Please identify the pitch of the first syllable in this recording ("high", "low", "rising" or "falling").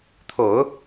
low